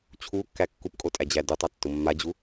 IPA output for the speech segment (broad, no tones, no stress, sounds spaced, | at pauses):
t͡ɕʰ u kː æ kː u p kʼ o tʼ æ d͡ʑ æ d u tˤ a tː ʊ mː a d͡ʑ u